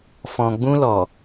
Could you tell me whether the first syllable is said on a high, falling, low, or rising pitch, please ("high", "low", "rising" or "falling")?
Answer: low